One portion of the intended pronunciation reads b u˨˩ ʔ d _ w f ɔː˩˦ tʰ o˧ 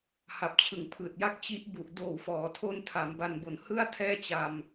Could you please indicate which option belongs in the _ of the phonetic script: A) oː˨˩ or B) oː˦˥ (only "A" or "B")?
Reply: A